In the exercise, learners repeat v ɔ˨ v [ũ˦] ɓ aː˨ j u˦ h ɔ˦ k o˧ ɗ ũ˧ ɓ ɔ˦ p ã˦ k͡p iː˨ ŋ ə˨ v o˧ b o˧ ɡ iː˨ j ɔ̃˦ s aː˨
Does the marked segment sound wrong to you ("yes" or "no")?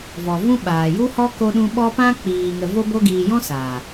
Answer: no